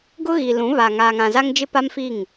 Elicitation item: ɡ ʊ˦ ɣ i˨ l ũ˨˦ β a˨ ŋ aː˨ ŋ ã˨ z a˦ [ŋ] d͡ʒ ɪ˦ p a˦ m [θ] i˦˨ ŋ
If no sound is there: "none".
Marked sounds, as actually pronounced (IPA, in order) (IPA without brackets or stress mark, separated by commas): ŋ, f